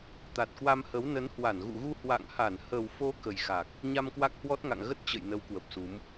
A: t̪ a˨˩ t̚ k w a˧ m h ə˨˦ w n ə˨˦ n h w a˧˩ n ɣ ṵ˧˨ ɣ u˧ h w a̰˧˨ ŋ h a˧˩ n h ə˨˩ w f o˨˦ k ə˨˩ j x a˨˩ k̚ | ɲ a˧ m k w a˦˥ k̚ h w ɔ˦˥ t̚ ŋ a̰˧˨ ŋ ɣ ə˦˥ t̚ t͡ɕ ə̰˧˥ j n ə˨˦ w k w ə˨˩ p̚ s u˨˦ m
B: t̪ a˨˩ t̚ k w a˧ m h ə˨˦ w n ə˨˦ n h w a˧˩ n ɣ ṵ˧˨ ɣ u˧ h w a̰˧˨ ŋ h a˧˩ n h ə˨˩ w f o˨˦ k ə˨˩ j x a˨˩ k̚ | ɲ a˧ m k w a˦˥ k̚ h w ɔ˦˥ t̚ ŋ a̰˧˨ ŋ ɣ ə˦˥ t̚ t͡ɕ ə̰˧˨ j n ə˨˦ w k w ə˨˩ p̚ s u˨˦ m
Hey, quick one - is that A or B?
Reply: B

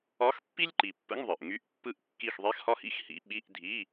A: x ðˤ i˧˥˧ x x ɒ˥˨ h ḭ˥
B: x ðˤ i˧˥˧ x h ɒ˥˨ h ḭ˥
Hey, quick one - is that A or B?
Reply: B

